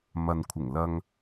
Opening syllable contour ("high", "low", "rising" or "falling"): low